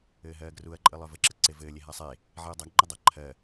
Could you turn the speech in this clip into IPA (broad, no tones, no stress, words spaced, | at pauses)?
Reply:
ɘːɦɜːɡruɐ̯ǃʼɨ lˠœvɘǁɘ ǀevɘːlʲe ɦasˤe | ʕiɐ̯dˤaɡŋ͡ǃɨdˤɜ ǃʰɜ